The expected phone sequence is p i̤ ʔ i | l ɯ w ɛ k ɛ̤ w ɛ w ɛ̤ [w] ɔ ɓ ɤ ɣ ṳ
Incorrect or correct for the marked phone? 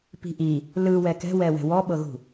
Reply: correct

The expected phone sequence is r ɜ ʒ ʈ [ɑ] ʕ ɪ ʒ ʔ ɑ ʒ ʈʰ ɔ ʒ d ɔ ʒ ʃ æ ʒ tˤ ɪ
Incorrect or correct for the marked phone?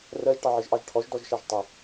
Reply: correct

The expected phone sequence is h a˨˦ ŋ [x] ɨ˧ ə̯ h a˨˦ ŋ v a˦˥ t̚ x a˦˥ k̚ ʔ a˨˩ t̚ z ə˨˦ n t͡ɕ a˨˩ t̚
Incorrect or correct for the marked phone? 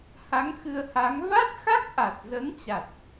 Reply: correct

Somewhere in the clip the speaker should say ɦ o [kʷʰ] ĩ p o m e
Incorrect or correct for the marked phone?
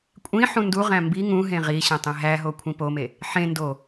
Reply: correct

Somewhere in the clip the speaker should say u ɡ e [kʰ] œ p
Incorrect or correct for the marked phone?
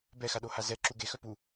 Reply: incorrect: x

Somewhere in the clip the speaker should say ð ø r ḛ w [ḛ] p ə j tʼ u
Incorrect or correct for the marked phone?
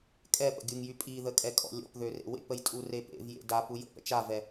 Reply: correct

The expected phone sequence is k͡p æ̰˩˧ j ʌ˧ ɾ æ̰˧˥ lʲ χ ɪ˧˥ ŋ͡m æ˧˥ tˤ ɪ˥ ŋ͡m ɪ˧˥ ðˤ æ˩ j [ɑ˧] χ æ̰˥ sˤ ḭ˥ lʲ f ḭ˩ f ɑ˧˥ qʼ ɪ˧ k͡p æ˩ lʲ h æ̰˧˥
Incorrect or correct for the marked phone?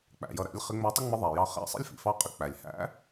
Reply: correct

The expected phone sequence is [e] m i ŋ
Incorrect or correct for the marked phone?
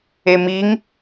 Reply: correct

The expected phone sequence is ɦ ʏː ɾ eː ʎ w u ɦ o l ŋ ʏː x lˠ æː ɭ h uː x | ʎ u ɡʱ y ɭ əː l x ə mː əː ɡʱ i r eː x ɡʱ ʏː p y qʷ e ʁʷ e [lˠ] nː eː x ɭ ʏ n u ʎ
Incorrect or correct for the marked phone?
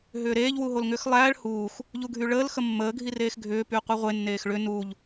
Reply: incorrect: none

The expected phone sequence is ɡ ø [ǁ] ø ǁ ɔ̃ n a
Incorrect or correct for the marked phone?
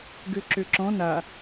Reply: correct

